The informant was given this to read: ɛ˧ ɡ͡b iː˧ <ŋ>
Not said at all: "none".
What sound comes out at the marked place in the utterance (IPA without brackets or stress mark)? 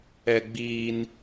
n